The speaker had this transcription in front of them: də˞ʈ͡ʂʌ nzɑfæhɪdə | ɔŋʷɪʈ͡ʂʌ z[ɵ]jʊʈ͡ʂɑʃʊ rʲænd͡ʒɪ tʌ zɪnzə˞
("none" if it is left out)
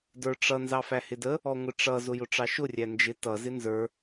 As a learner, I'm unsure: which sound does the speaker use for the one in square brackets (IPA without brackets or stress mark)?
ʊ